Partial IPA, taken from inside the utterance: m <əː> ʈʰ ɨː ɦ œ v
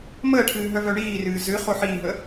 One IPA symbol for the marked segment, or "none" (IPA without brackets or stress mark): əː